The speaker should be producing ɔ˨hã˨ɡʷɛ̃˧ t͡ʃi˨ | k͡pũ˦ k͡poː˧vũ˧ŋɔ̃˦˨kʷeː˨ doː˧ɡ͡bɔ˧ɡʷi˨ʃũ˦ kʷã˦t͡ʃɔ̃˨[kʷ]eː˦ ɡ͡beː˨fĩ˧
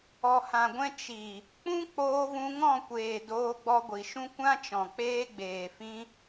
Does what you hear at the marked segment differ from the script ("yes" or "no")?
yes